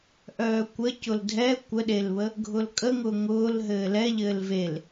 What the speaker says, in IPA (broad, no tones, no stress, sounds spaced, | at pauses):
ʔ œː kʷ ə c ʊ l dʱ ɛ kʷ ə ɗ e l β ə | ɡʱ ʊ l kʼ ə ŋ ʊ ŋ ʊː l ɦ ɘː l ɛ ʎ ɘː l v e l